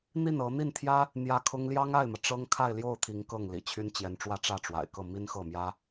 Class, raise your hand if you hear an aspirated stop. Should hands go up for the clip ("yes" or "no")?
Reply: yes